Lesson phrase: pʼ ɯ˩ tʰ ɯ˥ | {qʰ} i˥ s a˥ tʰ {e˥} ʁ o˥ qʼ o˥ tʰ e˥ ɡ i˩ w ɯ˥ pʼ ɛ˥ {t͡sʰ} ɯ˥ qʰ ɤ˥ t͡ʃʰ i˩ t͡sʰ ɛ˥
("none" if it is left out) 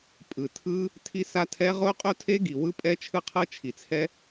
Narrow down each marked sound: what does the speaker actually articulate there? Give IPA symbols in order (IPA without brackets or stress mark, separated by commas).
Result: tʰ, ɛ˥, t͡ʃʰ